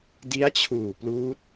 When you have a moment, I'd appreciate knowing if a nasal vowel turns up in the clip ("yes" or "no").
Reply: no